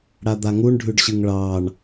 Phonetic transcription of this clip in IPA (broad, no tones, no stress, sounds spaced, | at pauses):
ɽ a d̪ a ŋ u ɳ ɖʱ ʉ ɖ ɕ ɨ ŋ ɭ ɑ ɳ